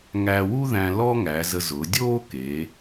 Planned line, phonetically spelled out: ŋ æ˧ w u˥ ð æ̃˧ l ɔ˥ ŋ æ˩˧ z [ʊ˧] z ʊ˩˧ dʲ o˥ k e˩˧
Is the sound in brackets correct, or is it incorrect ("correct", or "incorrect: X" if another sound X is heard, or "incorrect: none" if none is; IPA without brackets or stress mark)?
incorrect: ə˧